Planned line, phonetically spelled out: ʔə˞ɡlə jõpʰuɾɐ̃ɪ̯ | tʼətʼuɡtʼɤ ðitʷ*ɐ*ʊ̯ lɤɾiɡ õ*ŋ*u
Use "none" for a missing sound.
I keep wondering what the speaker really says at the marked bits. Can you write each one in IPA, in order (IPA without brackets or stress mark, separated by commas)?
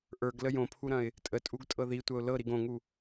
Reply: ɐ, ŋ